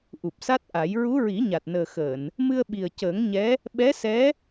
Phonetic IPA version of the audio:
ʔu˨˩p̚sa˦˥t̚ʔa˨˩˦j ɹu˧˥ɹi˨˩˦ ɲa˨˩t̚nəː˨˩xəː˨˩˨n | mɨ˧ə̯ɓi˨˩ə̯cəː˨˩˦ŋɲɛ˧˥ | ɓɛ˧˥sɛ˧˥

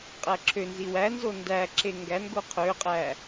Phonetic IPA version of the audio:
qʼæǁʰønzi wænzo ndæǁe ŋɡæn ɡoqʰøqʼæ

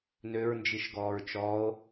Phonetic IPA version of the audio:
nøɹnd͡ʒiʃɡɔːɹ t͡ʃɔo̯

